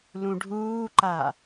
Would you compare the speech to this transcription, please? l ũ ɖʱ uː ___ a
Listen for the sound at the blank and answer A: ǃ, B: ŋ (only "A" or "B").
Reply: A